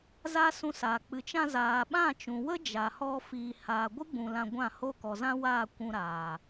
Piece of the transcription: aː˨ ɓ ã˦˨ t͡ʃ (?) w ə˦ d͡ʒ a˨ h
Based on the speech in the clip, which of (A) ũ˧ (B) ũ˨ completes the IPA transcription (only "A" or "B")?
B